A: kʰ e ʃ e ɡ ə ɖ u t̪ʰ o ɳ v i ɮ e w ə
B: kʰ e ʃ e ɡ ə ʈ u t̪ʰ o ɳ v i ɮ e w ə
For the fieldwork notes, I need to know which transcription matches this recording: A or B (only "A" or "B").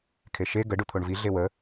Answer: A